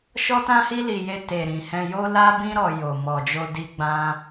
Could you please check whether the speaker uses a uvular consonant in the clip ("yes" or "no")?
no